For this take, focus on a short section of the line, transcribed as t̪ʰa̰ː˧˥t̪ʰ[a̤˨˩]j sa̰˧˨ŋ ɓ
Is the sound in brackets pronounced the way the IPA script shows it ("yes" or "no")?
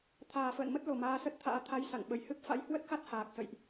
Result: no